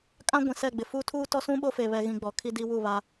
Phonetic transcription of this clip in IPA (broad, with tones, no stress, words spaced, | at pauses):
kʼã˦ ɡʷĩ˨sɛ˦˨ɡ͡bɪ˨ fu˦ tʰuː˦tɔ˦sũ˦ɓo˦ fe˨βɛ˨ɣĩ˨ ɡ͡bɔ˨kʰi˦di˦ wu˦˨βa˦